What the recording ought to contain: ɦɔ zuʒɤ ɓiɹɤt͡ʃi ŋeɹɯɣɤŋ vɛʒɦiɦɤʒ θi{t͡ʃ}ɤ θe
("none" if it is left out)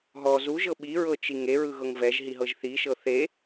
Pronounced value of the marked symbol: ʃ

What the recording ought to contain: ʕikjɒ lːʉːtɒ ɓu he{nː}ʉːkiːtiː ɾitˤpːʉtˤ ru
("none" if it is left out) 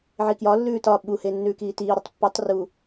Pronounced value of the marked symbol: nː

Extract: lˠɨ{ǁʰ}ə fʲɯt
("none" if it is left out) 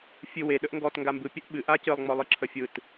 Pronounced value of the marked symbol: ǁʰ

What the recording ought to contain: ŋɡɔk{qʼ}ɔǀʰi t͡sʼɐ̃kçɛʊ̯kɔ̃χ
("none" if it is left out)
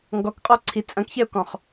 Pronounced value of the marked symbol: qʼ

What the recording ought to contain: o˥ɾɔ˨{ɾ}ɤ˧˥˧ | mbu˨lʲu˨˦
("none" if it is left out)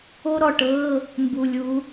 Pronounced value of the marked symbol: ʈ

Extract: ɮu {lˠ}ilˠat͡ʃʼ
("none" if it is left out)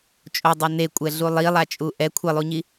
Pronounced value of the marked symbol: lˠ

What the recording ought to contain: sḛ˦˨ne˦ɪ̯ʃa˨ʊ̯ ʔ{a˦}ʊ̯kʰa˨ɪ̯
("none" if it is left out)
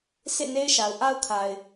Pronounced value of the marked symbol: a˦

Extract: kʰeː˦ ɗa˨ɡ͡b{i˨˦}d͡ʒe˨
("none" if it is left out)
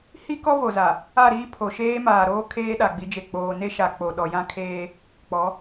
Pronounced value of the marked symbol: i˨˦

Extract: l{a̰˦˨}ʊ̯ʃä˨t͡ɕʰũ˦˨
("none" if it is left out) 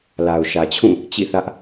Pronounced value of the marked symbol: a˨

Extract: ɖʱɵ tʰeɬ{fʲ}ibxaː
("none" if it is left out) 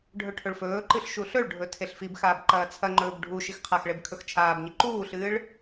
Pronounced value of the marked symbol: f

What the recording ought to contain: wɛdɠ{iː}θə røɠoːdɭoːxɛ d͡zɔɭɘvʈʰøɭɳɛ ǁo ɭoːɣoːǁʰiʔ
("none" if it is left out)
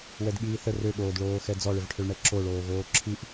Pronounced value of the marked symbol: iː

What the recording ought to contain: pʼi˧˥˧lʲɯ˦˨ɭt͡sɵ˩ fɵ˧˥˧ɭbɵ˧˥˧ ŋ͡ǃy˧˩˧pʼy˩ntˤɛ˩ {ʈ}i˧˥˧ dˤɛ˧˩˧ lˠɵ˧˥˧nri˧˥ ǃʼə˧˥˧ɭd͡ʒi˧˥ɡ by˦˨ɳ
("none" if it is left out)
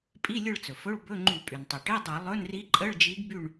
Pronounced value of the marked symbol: ʈ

